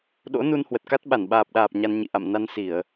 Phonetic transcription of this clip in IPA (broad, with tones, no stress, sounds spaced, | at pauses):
ɗ o̰˧˥ n u˧ n h w ə˨˩ t̚ k a˦˥ t̚ ɓ a˧˩ n ɓ aː˨˩ p̚ ɗ aː˨˩ p̚ ɲ a˧ n ɲ ḭ˧˨ ʔ a̰˧˨ m n a˧ n s i˧˩˨ ə̯